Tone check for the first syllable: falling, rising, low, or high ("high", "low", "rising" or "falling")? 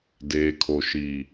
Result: low